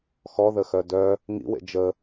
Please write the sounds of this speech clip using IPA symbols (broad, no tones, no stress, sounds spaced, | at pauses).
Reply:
x ɔ ð ə x œ d œ | ŋ ḭ w ḛ d͡ʒ ə